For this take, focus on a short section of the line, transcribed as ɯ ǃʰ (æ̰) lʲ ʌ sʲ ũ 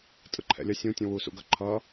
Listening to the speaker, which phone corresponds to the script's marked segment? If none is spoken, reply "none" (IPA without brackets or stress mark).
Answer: ɛ̰